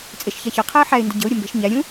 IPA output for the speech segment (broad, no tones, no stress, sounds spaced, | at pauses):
t͡sʼ e ʃ ç a ç ɒ qʰ æ ə̯ ħ æ ɪ̯ n d ə ɟ ə̤ ʊ̯ ɾʲ ə m b ɛ̤ ʃ ɲ æ ɾʲ ũ